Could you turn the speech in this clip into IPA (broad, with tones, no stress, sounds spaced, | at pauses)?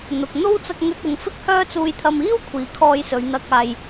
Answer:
n̪ ʊ˨ k̚ n̪ o˥ w t͡s ɐ˧ k̚ ŋ ɵ˧ t̚ ʊ˨ ŋ f ɪ˥ k̚ h œː˥ t͡s uː˧ j t̪ʰ ɐ˧ m iː˥ w kʷʰ iː˨ kʰ ɔː˧ j s ɵ˨˧ ɥ n̪ ɐ˧ k̚ aː˧ j